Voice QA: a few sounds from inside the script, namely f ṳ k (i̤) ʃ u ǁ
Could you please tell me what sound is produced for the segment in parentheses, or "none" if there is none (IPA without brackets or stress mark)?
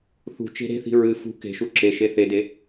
e̤